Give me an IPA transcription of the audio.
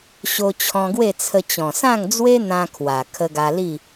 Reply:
ɕ o˧ t͡ɕʰ ɔ̃˧ ɡ w e˥˧ t͡sʰ ə˧ t͡ɕ ɔ̃˨˩ s ã˥˧ ŋ d͡z w e˦ n̪ ã˧ kʰ w a˨˩ kʰ ə˧ ɡ a˧ l i˥˧

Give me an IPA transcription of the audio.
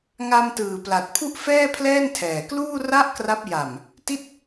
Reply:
ŋ a˧ m t ɯː˨˩ p l a˨˩ t̚ pʰ u˥˩ ʔ f ɛː˥˩ pʰ l ɛː˥˩ n tʰ ɛː˨˩ k l uː˥˩ r a˥˩ ʔ k r a˦˥ p̚ j a˨˩ m | t i˥˩ t̚

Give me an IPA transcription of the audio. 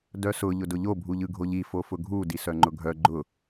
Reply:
d œ s ʊ ʎ ʊ d ʊ ʎ o bʱ u ʎ ɯ ɡʱ o ʎ i f o f ʊ ɡʱ u d i s œ ŋ͡ǃ ʊ ɡʱ œ ɡ͡ǃ ʊ

